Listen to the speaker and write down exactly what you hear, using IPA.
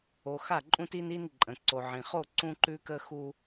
o˨ x a˦˨ ǃʼ ũ˦ t i˦ n i˦ n ǃʼ ə̃˨ ǀ o˨ ʕ ĩ˨ χ o˦˨ ǀ ũ˦ ǃ ʉ˦ k ə˦ x u˦

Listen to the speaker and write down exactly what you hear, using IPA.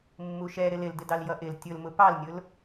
mː u ʃ ɛ ɾ ɪ l ɪ l d ɪ d ɑ l j ʌ ʔ ɪ l tʲ ʊ l m ʊ p ɑ l nʲ ʊ l

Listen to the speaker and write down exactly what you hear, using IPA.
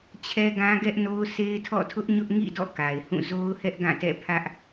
t͡ɕʰ ɛ˦ ɡ ã˦ ɡ ɛ˦ ʔ n o˦ ʊ̯ s e˦ ɪ̯ tʰ ɔ̰˦˨ tʰ ʊ˦ ʔ ɲ ʊ˦ ʔ ŋ ḭ˦˨ d ɔ̰˦˨ k a˨ ɪ̯ h ũ˦˨ z o˦ ʊ̯ h ɛ˦ ʔ ɡ ã˦˨ t ɛ̰˦˨ pʰ ä˦ ʔ

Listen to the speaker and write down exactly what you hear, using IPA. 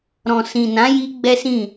ɾ ɔ̃˨ s ĩ˨ n ã˨˦ j i˧ ɡ͡b ɛ˦ s ĩ˦˨

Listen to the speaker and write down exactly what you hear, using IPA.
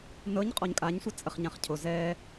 n ɤ ɲ qʼ ɔ ɲ kʼ a ɲ sʷ ə t͡sʼ ə χ ɲ ã χ cʰ o z ɛ

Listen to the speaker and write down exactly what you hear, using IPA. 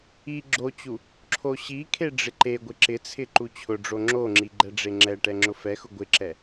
i ɡ͡ǁ o t͡ɕ u | ǁʰ o ɕ i kʰ e ɖ͡ʐ ɪ ǃ e ɡʷ ɪ ǁ ɪ t͡sʰ ɪ ǃ u t͡ɕʰ ʊ ɖ͡ʐ o ŋ͡ǁ o ŋ͡ǁ i ɡ͡ǃ ɛ ɖ͡ʐ e ŋ͡ǁ ɛ ʈ ɛ ŋ͡ǁ ʊ f ɛ x ʊ ɡʷ ɪ ǁ ɛ

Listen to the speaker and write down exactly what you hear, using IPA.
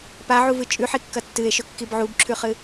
p a ʕ u v ɨ t͡ʃʼ ʉ ħ i kː ɐ tː ɨ e̯ ʃ ɵ kː i b ʕ u b ǁʰ ʉ χ ɨ

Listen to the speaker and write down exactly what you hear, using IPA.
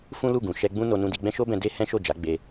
f ũ˦ l u˦˨ ɡ ũ˨ ʃ ɛ˧ ɡ͡b ũ˦ n o˧ n ũ˧ d i˧ ɡ͡b ɛ̃˦ ʃ o˦ b ɛ̃˧ d e˦ h ɛ̃˦ ʃ o˦˨ d͡ʒ a˨˦ ɡ͡b e˧

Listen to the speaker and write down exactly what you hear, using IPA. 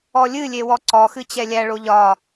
ɔ lʲ ɨ lʲ e w ɔ ǀ ɔ x ɨ t͡ɕ ɛ lʲ æ ɭ o ʎ ɒ

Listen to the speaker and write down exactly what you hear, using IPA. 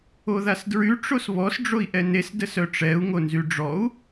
o ð a s d ɹ y ʈ͡ʂ o s β ɔ s ɖ͡ʐ o i̯ ʔ ɛ n e s d ə s œ ʈ͡ʂ ɛ u̯ ŋ o n z y ɖ͡ʐ ɔ u̯

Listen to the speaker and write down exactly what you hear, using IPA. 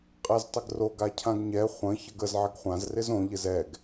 qʼ ɛ z tˤ ɪ ɡ r o ɡ a cʰ ã ɡ ɲ ɛ χʷ ə̃ ç ə ɡ ə z ʕ ɪ ɡ χʷ ã z r ɪ z õ ʎ ɪ z ɛ ɡ

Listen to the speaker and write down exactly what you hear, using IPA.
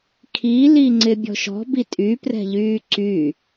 kʰ i l i ŋ͡ǀ ɪ bʲ ɔ̤ ʃ ɔ̤ b i tʼ y p r ɛ̤ ʎ yː ǀ y

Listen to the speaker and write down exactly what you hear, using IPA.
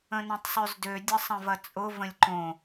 ə̃ n ɐ̃ tˤ sˤ ø z d ø dʲ ə sˤ ɐ̃ v ɐ t͡sʼ ʊ v ə̃ lʲ ǃ õ

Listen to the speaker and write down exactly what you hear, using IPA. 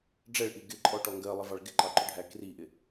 ɖ͡ʐ ɛ ɭ ʔ i ɡ ɪ ǃʼ ɔ ʈ ɔ ŋ ɡ ɜ lˠ ə v ɑ ɭ ɡ ɪ ǃ ɑ ǃ ʊ ɖʱ æ k r i ʔ ɪ

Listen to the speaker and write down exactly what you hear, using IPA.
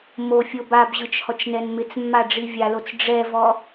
m o fʲ o b a b ʑ ɯ t͡ʃ h ɔ t͡ʃ n ɛ n m ɪ t͡s mː a ɖ͡ʐ i vʲ a l o t͡s ɖ͡ʐ ɛ v ɔ

